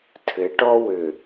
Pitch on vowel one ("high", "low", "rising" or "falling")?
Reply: rising